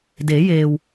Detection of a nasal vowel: absent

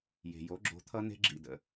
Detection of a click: present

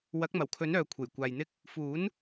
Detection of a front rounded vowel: present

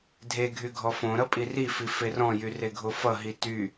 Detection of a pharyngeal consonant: absent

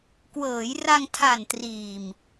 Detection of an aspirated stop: present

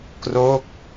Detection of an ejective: absent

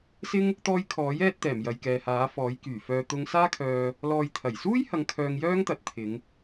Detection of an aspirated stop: present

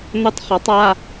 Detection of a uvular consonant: present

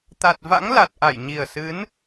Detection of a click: absent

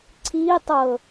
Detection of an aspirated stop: present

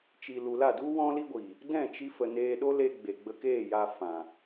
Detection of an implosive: present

